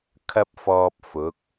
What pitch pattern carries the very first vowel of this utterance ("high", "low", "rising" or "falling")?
high